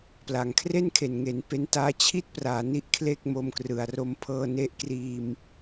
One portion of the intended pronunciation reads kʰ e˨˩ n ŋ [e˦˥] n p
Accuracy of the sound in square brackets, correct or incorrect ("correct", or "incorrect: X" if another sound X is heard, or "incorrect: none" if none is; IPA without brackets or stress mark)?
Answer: incorrect: e˩˦